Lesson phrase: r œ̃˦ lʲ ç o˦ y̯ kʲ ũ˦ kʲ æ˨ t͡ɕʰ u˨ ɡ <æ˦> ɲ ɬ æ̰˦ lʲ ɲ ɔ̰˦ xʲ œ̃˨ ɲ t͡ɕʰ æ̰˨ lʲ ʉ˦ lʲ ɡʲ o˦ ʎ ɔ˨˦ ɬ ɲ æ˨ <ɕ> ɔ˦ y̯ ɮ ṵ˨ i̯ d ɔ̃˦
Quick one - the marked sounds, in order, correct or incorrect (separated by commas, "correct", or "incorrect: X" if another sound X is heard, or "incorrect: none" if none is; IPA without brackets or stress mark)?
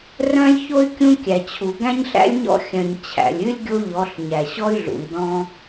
incorrect: æ̃˦, correct